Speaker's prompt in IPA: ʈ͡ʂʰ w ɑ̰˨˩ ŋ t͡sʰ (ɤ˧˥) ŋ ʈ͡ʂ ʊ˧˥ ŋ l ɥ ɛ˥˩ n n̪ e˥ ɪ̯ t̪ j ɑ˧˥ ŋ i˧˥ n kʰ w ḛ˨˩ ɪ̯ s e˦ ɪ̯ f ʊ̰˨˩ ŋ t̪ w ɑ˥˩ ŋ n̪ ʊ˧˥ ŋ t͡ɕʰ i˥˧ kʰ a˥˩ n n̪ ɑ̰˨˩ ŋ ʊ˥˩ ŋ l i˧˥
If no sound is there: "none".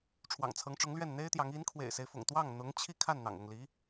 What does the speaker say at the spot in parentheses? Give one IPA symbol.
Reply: ɤ˧˥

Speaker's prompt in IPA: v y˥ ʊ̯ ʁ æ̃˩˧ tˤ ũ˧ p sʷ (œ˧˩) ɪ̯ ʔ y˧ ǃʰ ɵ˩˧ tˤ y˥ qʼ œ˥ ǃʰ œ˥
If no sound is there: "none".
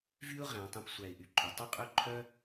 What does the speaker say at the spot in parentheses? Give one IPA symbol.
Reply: æ˧˩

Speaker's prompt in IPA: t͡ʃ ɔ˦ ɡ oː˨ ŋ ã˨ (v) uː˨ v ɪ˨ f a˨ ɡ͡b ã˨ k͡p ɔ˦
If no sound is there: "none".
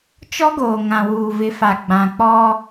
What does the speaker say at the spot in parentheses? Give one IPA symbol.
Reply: w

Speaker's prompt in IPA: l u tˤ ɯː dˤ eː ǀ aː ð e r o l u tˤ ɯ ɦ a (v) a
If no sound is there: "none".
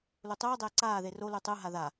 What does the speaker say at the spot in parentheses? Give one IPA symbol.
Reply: ð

